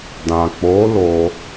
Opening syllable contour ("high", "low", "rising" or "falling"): low